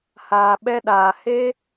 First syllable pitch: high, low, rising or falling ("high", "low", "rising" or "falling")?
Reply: low